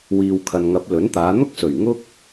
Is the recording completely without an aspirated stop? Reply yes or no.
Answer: no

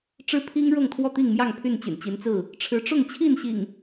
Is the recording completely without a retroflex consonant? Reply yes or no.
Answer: no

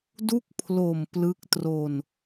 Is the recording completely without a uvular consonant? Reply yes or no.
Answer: yes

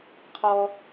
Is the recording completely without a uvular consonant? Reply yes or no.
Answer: no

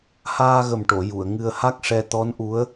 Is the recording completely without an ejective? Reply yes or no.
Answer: yes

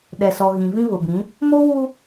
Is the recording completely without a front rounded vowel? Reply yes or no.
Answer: yes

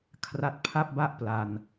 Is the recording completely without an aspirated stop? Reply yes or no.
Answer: no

